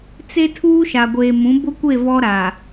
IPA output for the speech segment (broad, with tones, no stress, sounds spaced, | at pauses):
t͡s e˦ tʰ uː˦ ʃ a˨ ɡʷ eː˨ m ũ˨˦ b ʊ˦ kʷ e˦˨ v ɔ˦ ɾ a˨